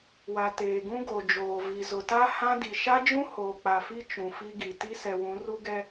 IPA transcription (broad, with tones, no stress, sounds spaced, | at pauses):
w a˨ t eː˨ ɡ ũ˦ ɡ o˨ d͡ʒ oː˨ v i˨ z ʊ˨ t a˦ h ã˦ d i˨ ʃ a˦ d͡ʒ ũ˦ h oː˨ k͡p a˨ f i˦ t͡ʃ ũ˨ f i˦ ɡ i˨ t i˦ s ɛ˨ w ũ˨˦ r u˦ ɡ ɛ˦